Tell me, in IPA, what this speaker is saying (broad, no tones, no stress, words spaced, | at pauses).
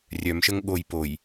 rʲœmʃəŋ ɠoj poj